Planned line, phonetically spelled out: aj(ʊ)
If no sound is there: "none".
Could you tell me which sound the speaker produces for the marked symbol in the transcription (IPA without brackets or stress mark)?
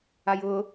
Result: ʊ